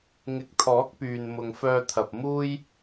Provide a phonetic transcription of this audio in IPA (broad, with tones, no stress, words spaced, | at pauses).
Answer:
ŋɪ˨˥k̚t̪ʰɔː˨˥k̚pyː˨n mʊ˨ŋfœː˧t̪ʰɐ˨p̚ muː˥j